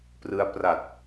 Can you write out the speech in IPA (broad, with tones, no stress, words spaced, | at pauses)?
prɯ˦˥a̯pra˨˩t̚